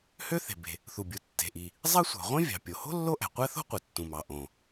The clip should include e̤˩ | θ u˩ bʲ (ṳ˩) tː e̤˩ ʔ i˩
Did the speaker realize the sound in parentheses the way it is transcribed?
no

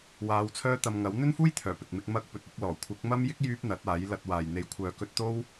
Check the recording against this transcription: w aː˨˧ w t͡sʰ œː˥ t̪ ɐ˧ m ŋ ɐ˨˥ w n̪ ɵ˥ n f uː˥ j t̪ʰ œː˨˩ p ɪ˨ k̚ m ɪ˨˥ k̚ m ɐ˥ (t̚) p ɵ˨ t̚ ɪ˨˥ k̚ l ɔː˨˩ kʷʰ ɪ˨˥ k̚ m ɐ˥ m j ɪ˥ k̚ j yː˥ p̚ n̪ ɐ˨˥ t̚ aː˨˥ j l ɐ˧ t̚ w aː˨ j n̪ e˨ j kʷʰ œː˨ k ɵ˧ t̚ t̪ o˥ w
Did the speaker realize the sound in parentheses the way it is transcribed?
no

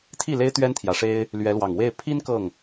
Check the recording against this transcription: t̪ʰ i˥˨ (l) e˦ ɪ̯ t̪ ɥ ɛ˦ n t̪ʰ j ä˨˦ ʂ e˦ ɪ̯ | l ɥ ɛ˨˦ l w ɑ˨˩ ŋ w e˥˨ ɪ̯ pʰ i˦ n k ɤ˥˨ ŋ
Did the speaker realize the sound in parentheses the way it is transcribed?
yes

